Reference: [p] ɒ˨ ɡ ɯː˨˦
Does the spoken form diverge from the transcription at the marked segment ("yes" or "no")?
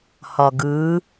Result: yes